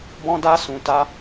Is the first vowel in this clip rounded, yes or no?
yes